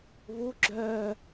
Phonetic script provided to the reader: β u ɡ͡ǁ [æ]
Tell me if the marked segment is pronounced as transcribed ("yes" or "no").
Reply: no